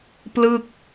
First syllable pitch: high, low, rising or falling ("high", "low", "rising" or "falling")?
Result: falling